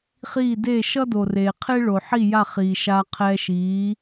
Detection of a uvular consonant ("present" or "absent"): present